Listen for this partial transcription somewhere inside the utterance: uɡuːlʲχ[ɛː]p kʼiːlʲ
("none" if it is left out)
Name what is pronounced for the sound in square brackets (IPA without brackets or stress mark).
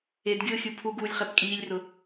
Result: ɛ